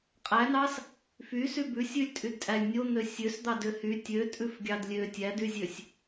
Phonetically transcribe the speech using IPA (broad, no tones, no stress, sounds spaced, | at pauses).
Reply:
qʼ æ n ɑ s | f y s y b ʉ sʲ ʉ lʲ tʼ y d tʼ æ lʲ nʲ o n̪ ø sʲ ø s d̪ ɑ d ø h y tʲ ø tʼ ʉ f ɡʲ ɑ d lʲ ø tʲ æ d y zʲ ø sʲ